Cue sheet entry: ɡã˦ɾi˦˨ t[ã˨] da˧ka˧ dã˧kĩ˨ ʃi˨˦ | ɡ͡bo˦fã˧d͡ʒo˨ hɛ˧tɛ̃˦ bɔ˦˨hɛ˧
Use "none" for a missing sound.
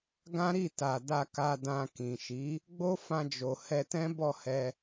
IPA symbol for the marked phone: a˨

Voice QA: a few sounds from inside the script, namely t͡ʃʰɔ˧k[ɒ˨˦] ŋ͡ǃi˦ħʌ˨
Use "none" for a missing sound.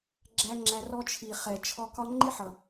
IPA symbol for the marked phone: ɒ˦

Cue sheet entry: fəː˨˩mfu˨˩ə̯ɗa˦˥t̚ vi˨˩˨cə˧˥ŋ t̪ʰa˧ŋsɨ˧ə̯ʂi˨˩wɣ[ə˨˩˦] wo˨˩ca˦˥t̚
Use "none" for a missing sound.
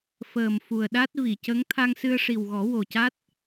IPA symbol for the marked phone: ɔ˨˩˦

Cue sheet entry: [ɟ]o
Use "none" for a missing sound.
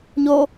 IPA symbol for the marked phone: ɲ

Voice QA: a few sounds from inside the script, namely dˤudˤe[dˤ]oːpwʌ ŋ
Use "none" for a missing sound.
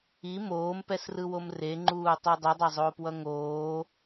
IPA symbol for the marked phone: zˤ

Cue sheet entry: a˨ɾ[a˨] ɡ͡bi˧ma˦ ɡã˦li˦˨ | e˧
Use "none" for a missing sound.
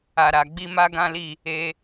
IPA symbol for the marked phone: a˨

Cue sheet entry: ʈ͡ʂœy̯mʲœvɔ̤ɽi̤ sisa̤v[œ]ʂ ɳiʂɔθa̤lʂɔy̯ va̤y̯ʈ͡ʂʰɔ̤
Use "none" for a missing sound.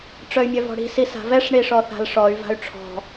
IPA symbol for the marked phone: ɛ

